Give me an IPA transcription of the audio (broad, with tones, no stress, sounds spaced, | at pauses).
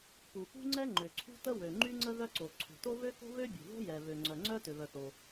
p u˩ p ṳ˥ ŋ͡ǀ ɛ˥ ŋ͡ǃ ø˩ ǀʰ ṳ˥ t ə˥ w ø˩ ŋ͡ǃ y˥ ŋ͡ǀ ə˥ ð œ˥ ǀ o˩ ǀʰ ṳ˩ t o˥ β ø˥ k o̤˥ β ø˥ bʲ ṳ˩ ð o̤˥ j ɛ˩ β ø˩ ŋ͡ǀ œ˩ ŋ͡ǀ œ˥ t ø˩ β œ˩ θ o˩